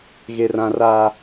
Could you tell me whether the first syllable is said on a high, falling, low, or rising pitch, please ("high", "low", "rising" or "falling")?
low